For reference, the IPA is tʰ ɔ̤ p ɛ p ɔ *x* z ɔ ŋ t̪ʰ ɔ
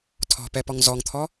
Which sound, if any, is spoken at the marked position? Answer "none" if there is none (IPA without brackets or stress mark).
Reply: ŋ